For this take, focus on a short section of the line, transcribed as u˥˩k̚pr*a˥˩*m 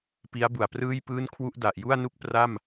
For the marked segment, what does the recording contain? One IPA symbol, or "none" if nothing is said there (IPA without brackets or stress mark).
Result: a˥˩